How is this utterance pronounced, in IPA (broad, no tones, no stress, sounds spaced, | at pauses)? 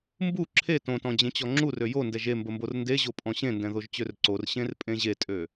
m b u ǁʰ e t õ t ɔ̃ d͡ʑ ẽ t͡ɕ ɔ ŋ͡ǁ u r ø j o n d ɛ ʒ e m b ə m b o r n d e ʑ o pʼ ɔ̃ ɕ ẽ n d ɛ̃ ð o ʒ t͡ɕ ø r ǀ o r ɕ ẽ r pʼ ẽ ʑ e tʼ ø